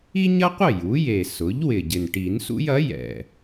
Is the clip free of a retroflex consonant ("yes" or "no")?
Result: no